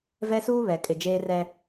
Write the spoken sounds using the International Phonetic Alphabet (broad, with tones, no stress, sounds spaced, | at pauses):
v ɛ˦ s uː˦ β ɛ˨ kʼ ɪ˨ d͡ʒ eː˦ r ɛ˦